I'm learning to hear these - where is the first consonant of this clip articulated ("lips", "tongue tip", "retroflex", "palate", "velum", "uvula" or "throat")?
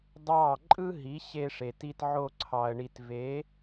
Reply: tongue tip